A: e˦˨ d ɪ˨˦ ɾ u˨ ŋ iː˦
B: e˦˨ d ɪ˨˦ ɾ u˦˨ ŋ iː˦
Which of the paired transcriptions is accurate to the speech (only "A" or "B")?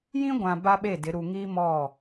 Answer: A